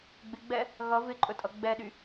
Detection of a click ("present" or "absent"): present